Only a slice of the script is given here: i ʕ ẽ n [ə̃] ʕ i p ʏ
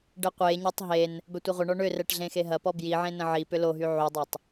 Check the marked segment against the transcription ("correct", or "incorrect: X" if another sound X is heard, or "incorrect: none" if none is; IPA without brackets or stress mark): correct